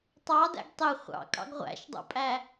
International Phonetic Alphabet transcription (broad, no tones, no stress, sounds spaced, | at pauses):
tˤ ɑ d æ̰ ɡ tˤ e χʷ ɑ̰ kʼ ɑ̰ ɡ ʁʷ æ̰ ʃ dˤ o̰ pʼ æ